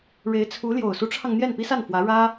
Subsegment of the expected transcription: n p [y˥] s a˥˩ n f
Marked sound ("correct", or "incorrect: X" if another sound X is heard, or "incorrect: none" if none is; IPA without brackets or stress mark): incorrect: i˥